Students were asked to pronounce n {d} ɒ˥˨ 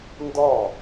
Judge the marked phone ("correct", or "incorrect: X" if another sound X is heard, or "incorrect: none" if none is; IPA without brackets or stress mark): correct